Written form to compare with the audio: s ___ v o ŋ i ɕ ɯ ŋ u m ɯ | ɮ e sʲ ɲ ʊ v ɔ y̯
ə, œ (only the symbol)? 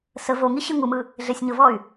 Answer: ə